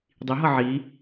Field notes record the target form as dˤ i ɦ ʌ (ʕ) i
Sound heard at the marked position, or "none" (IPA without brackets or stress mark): ʕ